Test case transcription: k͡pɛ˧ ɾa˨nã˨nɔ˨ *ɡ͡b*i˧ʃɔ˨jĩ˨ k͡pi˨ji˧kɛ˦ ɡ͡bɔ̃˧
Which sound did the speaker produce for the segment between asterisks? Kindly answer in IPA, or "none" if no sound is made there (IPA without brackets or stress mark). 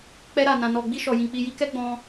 ɡ͡b